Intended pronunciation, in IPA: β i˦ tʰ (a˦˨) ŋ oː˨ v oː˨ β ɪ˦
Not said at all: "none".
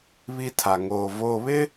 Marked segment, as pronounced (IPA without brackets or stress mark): a˨